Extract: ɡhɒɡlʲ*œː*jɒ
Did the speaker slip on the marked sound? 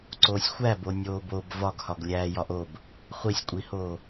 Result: yes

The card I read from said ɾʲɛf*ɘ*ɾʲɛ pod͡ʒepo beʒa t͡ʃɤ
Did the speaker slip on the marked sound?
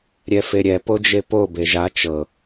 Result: yes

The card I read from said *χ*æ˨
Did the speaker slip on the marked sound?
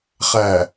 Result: no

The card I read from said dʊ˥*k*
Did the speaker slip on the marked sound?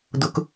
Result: no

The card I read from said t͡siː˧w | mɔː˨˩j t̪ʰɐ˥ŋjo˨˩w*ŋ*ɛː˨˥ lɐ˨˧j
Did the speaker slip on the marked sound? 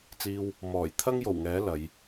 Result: no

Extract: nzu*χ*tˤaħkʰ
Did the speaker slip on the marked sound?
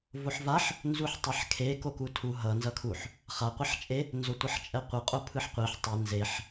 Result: yes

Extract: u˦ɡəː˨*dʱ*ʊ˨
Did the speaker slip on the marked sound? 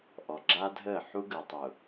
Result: yes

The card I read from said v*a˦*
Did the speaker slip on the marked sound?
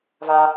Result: no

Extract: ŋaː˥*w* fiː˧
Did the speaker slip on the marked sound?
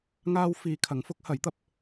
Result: no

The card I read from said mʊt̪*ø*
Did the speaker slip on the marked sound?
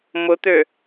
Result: no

